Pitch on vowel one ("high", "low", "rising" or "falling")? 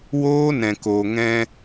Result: high